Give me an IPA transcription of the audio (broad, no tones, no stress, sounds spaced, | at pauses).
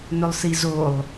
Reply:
n ɵ lˠ s i z o lˠ